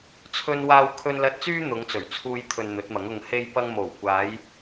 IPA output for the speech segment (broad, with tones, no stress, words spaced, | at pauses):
t͡sʰɵ˧nwaː˧w kʰɵ˧nlɐ˧t̚t͡syː˥ n̪ʊ˨˧ŋt͡sɵ˨˩ɥt͡sʰuː˧jt̪ʰɵ˨n n̪ɵ˨˥t̚mɐ˨˥ŋʊ˧ŋ he˧jpɐ˧ŋ mo˨˩wkʷaː˨˧j